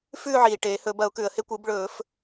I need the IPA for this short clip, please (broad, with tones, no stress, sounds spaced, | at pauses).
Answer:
f ʉː˥˧ ʕ iː˩ ʈ eː˨˩˦ h ɵ˨˩˦ b ɐ˨˩˦ ʊ̯ k ʉ˩ ə̯ h e˥˧ kʷ ɨ˨˩˦ b ɭ ɵː˨˩˦ f